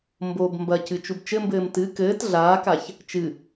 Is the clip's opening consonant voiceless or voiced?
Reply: voiced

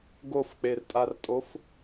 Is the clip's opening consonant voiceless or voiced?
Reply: voiced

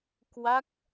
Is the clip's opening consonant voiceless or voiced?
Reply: voiceless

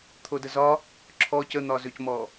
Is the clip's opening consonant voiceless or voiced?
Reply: voiceless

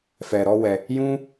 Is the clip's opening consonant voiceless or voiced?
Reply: voiceless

